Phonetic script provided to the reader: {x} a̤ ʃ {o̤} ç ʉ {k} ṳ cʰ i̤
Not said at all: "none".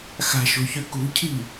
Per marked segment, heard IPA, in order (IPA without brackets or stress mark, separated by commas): x, o̤, k